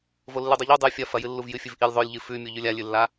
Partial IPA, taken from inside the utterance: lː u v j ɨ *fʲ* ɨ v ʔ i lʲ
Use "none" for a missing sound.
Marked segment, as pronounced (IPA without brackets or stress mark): fʲ